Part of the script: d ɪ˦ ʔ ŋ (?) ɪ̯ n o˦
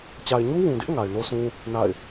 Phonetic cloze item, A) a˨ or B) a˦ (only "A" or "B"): A